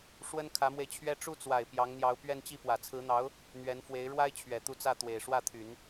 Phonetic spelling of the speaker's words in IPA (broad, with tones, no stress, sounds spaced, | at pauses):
ʂ w ə˥ n kʰ ä˧˥ m w e˧ ɪ̯ t͡ɕʰ ɥ ɛ˥ ʈ͡ʂ u˥˩ t͡s w a˨˩ ɪ̯ p j ɑ˧˥ ŋ n̪ j ɑ˧˥ ʊ̯ p ɥ ɛ˥˧ n t͡ɕ i˥˩ p w ä˨˩ t͡sʰ ɹ̩˧˥ n̪ ɑ˧˥ ʊ̯ | n̪ ɥ ɛ˧˥ n f w e˧˥ ɪ̯ ɻ w a˥ ɪ̯ t͡ɕʰ ɥ ɛ˨˩ t̪ u˥˧ t͡s ä˥˩ t̪ w e˨˩ ɪ̯ ʂ w ä˥˩ t̪ʰ y˨˩˦ n